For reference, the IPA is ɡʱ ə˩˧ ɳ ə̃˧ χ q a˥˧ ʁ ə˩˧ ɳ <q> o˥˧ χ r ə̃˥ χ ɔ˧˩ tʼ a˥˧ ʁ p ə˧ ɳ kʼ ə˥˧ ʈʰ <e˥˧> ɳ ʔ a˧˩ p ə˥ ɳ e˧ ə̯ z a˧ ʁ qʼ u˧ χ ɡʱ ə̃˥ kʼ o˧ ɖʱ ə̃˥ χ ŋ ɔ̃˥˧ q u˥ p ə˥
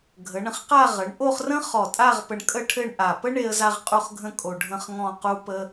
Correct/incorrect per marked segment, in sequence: incorrect: ʔ, incorrect: ɘ˥˧

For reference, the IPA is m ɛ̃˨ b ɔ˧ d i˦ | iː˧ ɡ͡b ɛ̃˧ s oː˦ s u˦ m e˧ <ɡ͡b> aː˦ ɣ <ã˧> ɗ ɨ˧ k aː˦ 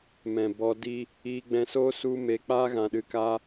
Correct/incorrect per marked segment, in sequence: incorrect: k͡p, correct

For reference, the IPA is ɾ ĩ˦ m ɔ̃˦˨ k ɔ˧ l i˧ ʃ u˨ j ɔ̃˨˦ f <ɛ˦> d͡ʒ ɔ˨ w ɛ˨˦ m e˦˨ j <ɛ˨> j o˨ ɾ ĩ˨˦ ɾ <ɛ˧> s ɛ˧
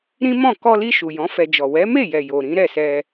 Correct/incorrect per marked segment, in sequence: incorrect: ɛ˧, correct, incorrect: ɛ˦˨

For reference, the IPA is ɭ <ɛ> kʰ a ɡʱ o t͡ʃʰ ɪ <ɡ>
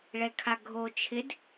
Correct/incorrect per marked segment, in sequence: correct, incorrect: d

